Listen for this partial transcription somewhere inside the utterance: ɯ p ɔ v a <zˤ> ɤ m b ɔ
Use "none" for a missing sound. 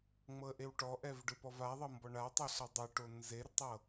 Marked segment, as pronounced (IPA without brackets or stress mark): ðˤ